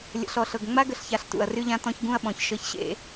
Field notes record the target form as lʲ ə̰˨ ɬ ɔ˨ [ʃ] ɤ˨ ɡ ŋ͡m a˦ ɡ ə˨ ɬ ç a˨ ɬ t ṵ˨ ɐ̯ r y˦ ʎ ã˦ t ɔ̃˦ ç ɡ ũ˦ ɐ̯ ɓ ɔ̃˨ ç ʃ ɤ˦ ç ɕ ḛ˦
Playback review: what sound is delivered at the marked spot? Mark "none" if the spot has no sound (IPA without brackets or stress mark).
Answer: ɬ